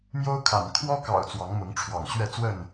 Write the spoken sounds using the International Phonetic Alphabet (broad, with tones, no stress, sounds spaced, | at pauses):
m j o˦ ʊ̯ kʰ a̰˨˩ n kʰ w ɔ˦ k ɑ̰˨˩ ʊ̯ t͡s w ɑ˨˦ ŋ m ʊ˨˦ ŋ ʈ͡ʂʰ w ɑ̰˨˩ ŋ ɕ ɥ ɛ˥˨ t͡s w ə˥˨ n